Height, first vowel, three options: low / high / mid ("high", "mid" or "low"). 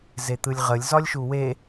mid